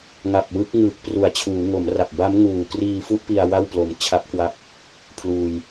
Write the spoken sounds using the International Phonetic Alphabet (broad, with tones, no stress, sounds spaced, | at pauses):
ŋ a˨˩ p̚ w ɯ˦˥ k̚ ŋ ɯː˨˩ k̚ p r u˩˦ a̯ t͡ɕʰ uː˩˦ ŋ o˩˦ m r a˨˩ p̚ b a˦˥ m ŋ uː˨˩ k r iː˧ f u˥˩ ʔ p i˧ a̯ w a˥˩ w p l o˨˩ m t͡ɕʰ a˦˥ p̚ k w a˦˥ p̚ | pʰ l uː˧ j